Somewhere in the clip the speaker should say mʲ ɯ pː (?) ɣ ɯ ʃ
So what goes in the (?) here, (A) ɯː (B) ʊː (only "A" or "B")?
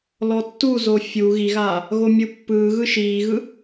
A